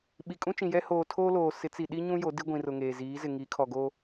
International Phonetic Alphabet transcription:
ɓi˨kʼũ˦t͡ʃĩ˨jɛ˦ hoː˨tʰoː˦loː˨ sɪ˨˦t͡si˨ ɗi˦ɲũ˦ jo˨˦di˦ɡʷĩ˨rʊ˨ ŋeː˨ziː˨˦zɪ˨ ŋi˨˦kʰɔ˨ɡoː˦

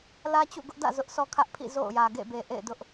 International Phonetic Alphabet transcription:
lä˦t͡ɕṵ˦˨ɡʊ˦ʔdä̰˦˨ zʊ˦ʔsɔ˦kʰä˦ʔpʰḭ˦˨ zo̰˦˨ʊ̯jä˨ ɡḛ˦˨be˨ ʔḛ˦˨ɪ̯dʊ˦ʔ

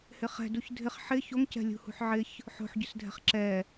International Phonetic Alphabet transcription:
hɪχɛ̤ duçdʱɪχ ħɪ çoŋcɛ̤ lʲṳhṳħʕɪç | ħo̤ħɟʏsdʱɛ̤χ ǁɛ

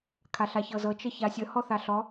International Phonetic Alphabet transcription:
kʰaɬaçɤzɤ t͡ʃəçasʲə hɔθaɬɔ

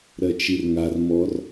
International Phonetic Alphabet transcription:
ɾɜt͡ʃirŋar mɔr

